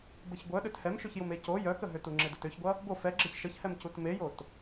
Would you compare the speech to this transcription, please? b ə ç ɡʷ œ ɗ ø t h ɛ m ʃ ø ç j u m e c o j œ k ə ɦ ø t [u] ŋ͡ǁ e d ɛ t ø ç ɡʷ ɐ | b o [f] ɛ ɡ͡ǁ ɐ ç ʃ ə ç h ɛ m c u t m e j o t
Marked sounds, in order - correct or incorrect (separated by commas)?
correct, correct